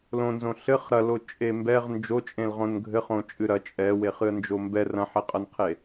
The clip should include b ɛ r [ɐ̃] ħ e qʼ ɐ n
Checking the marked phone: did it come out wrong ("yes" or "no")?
no